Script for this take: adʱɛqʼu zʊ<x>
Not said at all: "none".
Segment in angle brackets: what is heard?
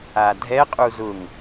ŋ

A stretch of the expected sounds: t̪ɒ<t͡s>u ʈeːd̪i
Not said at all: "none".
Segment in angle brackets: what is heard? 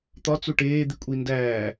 t͡s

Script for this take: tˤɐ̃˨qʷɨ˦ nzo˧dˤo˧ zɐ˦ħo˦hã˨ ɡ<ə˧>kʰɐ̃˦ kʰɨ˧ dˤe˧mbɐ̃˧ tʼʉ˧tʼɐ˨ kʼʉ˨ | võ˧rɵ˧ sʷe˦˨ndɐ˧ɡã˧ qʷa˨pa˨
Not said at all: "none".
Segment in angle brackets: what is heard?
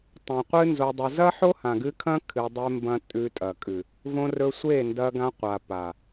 ɨ˧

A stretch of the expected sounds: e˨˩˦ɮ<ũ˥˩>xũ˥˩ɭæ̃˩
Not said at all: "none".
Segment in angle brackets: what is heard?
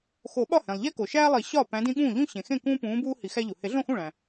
õ˥˩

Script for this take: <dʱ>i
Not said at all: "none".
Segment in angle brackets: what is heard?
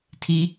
tʰ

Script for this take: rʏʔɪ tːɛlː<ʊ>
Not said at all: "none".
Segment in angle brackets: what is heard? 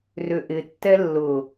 ʊ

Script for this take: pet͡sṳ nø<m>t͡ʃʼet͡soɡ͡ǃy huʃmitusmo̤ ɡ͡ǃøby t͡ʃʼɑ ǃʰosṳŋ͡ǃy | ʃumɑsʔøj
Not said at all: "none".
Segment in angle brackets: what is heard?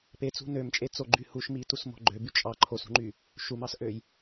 m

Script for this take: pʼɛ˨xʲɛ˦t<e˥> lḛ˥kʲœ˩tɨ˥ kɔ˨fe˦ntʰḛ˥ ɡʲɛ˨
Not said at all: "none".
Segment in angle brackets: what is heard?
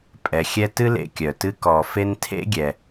ɨ˥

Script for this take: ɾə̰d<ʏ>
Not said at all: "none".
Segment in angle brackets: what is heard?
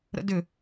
ʏ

